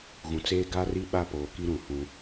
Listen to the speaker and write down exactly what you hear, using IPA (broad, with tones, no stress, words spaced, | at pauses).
ɣũ˨t͡seː˦ɡa˦ri˦ ɓa˦poː˨ki˦ ɾũ˨hũ˦